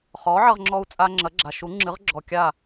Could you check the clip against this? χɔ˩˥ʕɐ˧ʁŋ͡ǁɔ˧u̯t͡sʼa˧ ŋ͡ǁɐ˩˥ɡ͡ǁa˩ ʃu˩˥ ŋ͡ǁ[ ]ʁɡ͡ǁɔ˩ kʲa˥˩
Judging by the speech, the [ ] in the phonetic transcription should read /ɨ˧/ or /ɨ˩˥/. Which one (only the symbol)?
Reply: ɨ˩˥